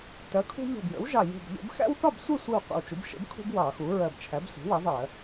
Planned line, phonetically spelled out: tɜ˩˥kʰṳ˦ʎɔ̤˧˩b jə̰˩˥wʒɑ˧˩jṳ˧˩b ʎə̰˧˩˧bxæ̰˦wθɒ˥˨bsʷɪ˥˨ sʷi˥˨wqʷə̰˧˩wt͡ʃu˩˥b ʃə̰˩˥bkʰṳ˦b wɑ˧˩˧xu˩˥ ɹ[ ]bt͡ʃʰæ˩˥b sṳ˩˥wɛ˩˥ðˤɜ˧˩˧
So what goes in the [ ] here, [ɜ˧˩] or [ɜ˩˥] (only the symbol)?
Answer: ɜ˧˩